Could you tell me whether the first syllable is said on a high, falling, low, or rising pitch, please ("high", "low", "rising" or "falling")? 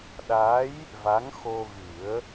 rising